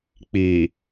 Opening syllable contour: low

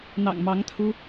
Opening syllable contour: low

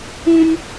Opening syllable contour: high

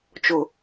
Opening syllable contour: low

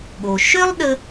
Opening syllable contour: low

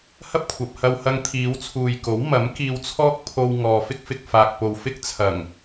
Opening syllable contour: high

